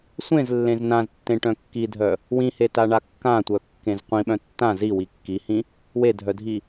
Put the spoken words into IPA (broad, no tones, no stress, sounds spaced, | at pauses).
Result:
sʷ ẽ z lː ẽ z n ã z tː ẽ ʈ œ̃ kː i dʱ œ | w ĩ h e t a ɳ a kː ã tʷ œ kː ẽ z qʷ ĩ ɓ œ̃ tː ã z i w i kː i h ĩ | w e dʱ œ dʱ i